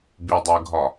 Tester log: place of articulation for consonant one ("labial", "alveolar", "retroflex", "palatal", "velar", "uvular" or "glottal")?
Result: labial